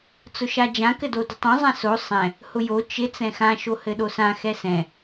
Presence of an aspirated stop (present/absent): absent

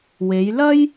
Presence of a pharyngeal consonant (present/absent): absent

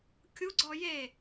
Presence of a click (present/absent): present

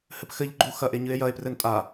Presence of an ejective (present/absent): present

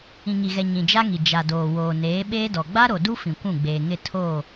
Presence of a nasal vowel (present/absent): present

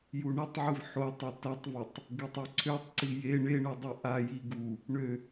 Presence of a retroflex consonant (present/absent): present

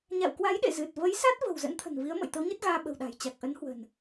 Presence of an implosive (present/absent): present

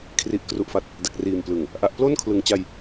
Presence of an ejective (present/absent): absent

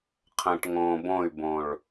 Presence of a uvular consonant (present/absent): present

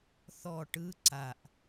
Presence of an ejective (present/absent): absent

